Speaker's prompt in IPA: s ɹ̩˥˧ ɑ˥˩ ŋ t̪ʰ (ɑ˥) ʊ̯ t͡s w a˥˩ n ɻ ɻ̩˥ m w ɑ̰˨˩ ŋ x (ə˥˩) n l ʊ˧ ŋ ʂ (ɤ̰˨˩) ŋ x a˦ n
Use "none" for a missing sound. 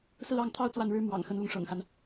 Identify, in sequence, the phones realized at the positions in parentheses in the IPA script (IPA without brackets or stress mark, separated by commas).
ɑ˥, ə˧˥, ɤ̰˨˩